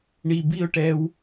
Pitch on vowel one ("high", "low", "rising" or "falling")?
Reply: low